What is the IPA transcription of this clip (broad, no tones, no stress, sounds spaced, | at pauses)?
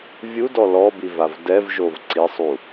vʲ u d ɔ l ɔ b i v a v d ɛ v ʒ o v ǀ i sˤ u